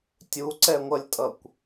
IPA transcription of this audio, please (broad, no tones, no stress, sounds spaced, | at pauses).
tʲ u ǀ ɛ ŋʷ ʌ lʲ tʼ ʌ kʷ